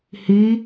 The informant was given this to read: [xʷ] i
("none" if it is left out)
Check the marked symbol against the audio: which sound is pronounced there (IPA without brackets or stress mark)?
h